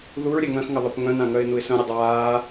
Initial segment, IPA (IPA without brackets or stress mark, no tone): ð